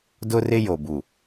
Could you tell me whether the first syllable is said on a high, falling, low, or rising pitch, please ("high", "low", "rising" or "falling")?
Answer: high